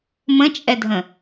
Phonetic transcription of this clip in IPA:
mə̃t͡ʃʼɛdʱə̃

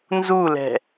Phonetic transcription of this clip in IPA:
nzulɛ̤

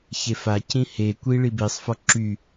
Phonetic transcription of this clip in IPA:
çefa cĩhekʷi ɭibisˤfɔ ǁy

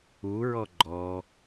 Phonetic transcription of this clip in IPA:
uɹɔ ɡ͡ǃɔ

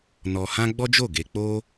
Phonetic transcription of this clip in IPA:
nɔ˧hã˦ ɡ͡bɔ˦d͡ʒo˦˨ɡe˧ k͡po˦

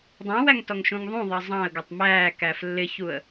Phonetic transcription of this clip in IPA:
dˤɑ̃wæŋtɔŋʃũŋ ðˤũðˤʌ zˤɑ̃ə̯ɡʌtˤ mæːkæf lːɪçuə̯

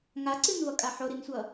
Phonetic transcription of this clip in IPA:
ŋaǀɨnvʌkʼa ħoɾinsʷʌ

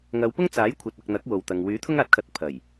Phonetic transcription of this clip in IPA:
ŋɐ˨˧wpʊ˥ŋ t͡saː˨˥j kʷʰɐ˨t̚ɐ˨k̚n̪ɐ˨˥k̚ wo˨wt̪ɐ˨ŋ wyː˨˥ t̪ʰʊ˥ŋaː˨˥t̚kʰɐ˨˥t̚ pʰɐ˨˩j

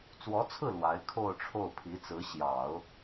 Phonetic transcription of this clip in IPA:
t͡swɔ˧˥t͡sʰɹ̩˥˩ lwa˧˥ɪ̯kʰo˥˧ʊ̯ʈ͡ʂʰo˥˩ʊ̯ pʰi˧˥t͡sɹ̩˧˥ ɕjɑ˨˩˦ʊ̯

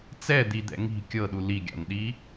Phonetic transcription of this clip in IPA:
t͡sɛd̪id̪ɛ̰ ŋi̤ kʲɤɗu liɡʲa̰nɗi

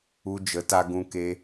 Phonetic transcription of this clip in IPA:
u˧d͡ʒə˨˦ta˧ ɡũ˧ke˧

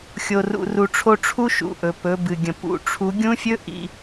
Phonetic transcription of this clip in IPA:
xʲo˧rṵ˧ru˧ʈ͡ʂʰo˥ ʈ͡ʂʰu˥ʃṵ˩˧ ʔɵ˩pɵ˩˧bɨ˩ɡʲə̃˩ pṵ˩˧ʈ͡ʂʰu˧˥ ɡʲũ˥fʲɵ˥ ʔḭ˧

